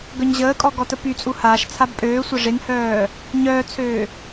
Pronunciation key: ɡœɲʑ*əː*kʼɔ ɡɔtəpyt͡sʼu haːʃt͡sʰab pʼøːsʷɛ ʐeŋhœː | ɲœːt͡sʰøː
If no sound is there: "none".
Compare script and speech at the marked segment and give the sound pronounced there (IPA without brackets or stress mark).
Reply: əː